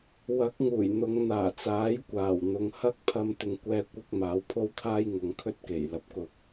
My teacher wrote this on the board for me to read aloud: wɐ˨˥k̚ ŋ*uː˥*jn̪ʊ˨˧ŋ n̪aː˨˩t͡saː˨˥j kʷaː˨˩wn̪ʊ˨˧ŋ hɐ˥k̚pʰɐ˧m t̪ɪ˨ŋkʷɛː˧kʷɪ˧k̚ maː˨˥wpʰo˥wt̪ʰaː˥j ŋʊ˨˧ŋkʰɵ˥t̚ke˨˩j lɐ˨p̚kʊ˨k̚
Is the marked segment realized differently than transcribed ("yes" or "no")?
yes